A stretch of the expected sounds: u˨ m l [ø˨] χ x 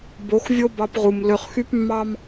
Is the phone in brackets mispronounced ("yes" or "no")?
no